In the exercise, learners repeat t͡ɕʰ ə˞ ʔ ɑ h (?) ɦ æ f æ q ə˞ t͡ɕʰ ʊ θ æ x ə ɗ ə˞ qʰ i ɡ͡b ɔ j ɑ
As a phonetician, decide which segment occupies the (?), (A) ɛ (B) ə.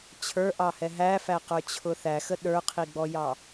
A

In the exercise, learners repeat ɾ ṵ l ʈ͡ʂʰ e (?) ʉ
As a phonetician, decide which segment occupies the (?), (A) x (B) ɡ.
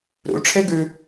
B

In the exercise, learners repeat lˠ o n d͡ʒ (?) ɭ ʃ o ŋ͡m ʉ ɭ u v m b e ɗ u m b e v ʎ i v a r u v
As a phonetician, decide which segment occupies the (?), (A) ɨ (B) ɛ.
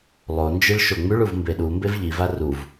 A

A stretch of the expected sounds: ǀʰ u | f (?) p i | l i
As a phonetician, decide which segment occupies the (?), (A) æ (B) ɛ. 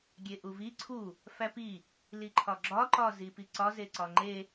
A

